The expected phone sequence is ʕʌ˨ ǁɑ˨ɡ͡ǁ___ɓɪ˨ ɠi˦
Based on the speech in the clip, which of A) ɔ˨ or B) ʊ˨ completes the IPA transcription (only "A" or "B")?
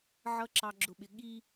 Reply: B